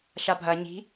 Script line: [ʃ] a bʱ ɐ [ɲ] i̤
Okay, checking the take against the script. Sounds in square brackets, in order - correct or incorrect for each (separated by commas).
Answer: correct, correct